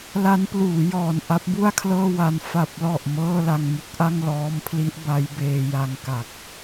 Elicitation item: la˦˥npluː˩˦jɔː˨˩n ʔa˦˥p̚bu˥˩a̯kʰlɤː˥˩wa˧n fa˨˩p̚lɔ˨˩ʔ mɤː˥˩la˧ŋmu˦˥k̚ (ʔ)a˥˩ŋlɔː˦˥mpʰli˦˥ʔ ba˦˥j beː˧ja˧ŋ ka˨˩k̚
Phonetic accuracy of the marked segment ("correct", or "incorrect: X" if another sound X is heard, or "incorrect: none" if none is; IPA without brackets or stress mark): correct